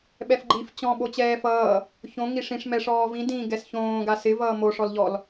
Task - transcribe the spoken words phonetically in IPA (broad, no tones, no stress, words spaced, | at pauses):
ɓɛfɡ͡ǃif t͡ɕɔ̃ ɓot͡ɕɛːfʌː | çõ ŋiʂĩʂ mɛʂɔːvĩ dĩ ɡɛsçõː ɡasɪ vʌːmo ʂɔlʎɔl